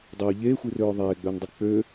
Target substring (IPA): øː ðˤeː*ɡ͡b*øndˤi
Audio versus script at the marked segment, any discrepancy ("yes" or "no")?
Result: no